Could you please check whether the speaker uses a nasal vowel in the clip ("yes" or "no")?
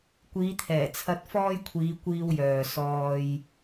no